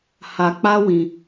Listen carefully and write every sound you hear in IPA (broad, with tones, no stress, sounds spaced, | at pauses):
h a˧ k͡p a˦ w ĩ˧